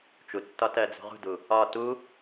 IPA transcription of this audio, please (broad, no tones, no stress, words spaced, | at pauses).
t͡ʃutːɒtɜd͡zṳ ʁṳdu | ɒ tu